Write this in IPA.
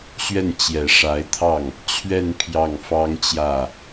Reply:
ɕ ɥ ɛ˥˩ n t͡ɕ j ɛ˨˩ ʂ a˧˥ ɪ̯ t̪ʰ ɑ˥˩ ŋ | t͡ɕʰ ɥ ɛ˥˧ n pʰ j ɑ˥˩ ŋ f ɑ˥ ŋ t͡ɕ j ä˥˩

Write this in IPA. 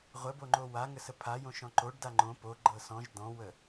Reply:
ʁʷ ə b o ŋ͡ǃ o w a ŋ ə s ə pʰ a j õ ʃ ɔ̃ ǃ o ɖ d a ŋ͡ǃ õ p o ɡ͡ǃ ɤ s ɔ̃ ʒ d̪ ɔ̃ w ə

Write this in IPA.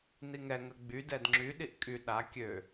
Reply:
n̪ i ŋ ɛ ŋ ə ɡ͡b y d ɛ d ŋ͡ǁ y ɗ i ʔ kʼ y ɗ a kʲ ø

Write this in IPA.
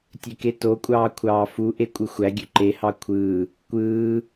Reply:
tʲ ø k e t o kʷʼ ɑː kʷʰ ɑː f u ʔ e kʷʼ ɯ xʷ æ ɡʲ ø ǃ e h ɑ kʷʰ ɯː | kʷ ɯː

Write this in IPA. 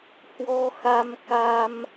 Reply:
h w ɔ˧ x a˧ m k a˧ m

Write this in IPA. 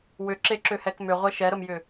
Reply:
w ʏ ǁ e ǁ ʏ h ɛ k m ʏ ʁʷ ɛ ʃ ɛ ɾ ə m j ʏ

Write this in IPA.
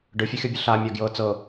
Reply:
ɖ ɯ fʲ ɯ xʲ ɔ bʲ ɯ ɬ a mʲ a ɡ j ɤ t͡s ɤ

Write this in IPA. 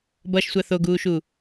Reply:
b ʌ ʃ sʷ a θ o ɡ uː ʃ u

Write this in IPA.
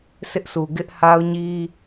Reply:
sʰ ɪ˦ ʔ sʰ u˨ ɡ ɪ˦ ʔ h a˦ ʊ̯ ɲ i˦

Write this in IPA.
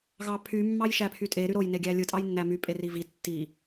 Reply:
ɣ ɑ pʰ y mː ɑ j ʃ æ pʰ y tʼ e ɾ y ɾ o j n e ɡʲ æ lʲ ɯ tʼ ɑ j nː æ m y pʼ e r i v i tː i

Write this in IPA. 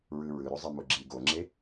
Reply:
ɹ ɯ ɹ ɯ ɾ o zˤ i m o ɡ͡ǁ i ɡ o ŋ͡ǁ e

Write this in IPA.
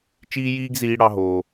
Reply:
t͡ʃ iː˦ j iː˦ ɡ z iː˦ ɽ ɑ˦ ɦ oː˦

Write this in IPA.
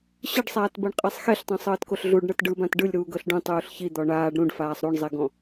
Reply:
ɕ ɯ ɖ sˤ aː t b ɤ ɳ qʼ e sˤ x e ɬ tˤ õ sˤ ɤː t k o ɬ ɮ u ɖ ɳ ɤ t ɖ ɯ b ã t ɖ ɯ lʲ ɾ uː ɡ ɤ ɬ ɖ ũ tˤ uː ɬ ç i d̪ ɔ ɳ aː ɖ ɾ ũ ɖ f aː sˤ ɾ u ɳ zˤ e ɡ ɔ̃

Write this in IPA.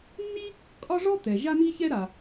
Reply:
nː i˥ | kʼ ɒ˥ ʐ ɔ˥ t̪ ɛ˩ ʒ a˥ n i˥ ç ɛ˥ ɾ a˩

